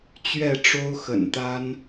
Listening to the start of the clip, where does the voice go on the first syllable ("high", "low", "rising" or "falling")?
falling